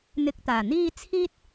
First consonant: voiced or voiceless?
voiced